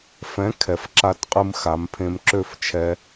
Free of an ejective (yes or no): no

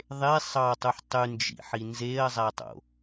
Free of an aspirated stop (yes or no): yes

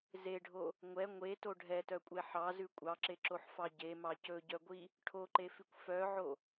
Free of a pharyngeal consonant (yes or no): no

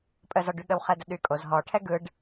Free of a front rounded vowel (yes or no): no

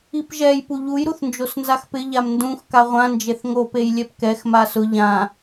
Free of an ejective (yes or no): yes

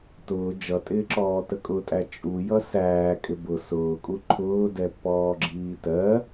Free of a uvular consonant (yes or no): yes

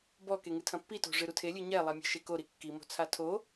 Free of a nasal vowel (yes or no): no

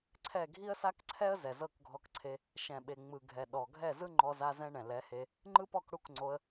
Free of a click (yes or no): no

